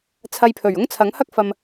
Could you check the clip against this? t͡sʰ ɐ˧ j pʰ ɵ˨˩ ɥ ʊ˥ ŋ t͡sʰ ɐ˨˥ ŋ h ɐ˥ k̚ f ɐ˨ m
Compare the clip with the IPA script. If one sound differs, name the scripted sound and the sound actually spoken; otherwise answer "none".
none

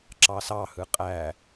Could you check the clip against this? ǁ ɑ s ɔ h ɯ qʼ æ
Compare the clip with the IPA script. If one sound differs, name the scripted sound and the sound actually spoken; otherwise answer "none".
ɔ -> ɑ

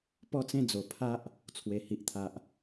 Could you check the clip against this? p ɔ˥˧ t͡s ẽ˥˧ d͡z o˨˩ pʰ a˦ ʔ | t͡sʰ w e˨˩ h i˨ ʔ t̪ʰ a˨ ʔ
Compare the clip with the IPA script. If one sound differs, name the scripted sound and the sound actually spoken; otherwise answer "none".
none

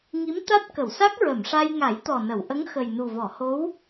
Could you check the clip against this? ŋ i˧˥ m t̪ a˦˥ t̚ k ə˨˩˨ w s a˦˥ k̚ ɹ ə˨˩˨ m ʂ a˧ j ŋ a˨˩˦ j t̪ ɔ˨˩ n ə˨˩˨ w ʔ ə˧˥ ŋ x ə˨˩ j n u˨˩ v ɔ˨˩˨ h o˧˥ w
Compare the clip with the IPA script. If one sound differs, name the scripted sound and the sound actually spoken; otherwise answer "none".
none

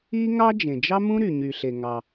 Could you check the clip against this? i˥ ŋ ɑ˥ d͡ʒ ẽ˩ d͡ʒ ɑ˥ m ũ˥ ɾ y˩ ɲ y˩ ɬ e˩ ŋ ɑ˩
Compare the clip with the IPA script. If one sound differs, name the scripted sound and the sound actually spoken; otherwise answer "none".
none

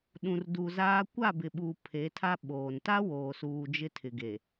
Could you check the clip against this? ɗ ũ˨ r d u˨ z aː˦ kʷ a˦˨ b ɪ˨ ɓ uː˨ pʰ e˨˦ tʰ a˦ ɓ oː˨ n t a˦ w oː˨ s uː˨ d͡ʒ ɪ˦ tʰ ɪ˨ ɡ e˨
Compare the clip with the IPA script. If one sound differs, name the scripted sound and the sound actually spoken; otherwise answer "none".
none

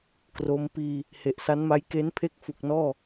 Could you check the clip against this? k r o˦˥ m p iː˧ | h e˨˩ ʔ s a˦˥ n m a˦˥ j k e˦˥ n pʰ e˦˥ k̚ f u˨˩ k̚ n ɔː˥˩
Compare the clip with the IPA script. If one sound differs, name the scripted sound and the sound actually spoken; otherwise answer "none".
none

